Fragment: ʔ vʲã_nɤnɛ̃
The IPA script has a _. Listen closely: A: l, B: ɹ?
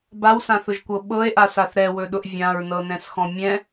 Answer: B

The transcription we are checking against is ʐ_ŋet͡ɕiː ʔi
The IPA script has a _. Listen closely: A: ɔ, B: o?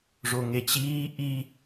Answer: B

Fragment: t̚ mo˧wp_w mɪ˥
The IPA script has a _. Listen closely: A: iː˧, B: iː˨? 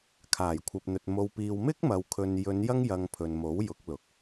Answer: A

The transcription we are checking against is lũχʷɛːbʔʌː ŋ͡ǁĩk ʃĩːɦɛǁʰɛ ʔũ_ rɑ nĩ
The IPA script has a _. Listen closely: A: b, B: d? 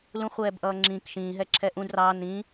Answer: B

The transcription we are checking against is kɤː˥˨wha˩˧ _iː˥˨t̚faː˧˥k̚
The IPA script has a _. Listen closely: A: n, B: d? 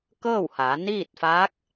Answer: A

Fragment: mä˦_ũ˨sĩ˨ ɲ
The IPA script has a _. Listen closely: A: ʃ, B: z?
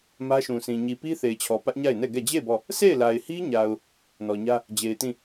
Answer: A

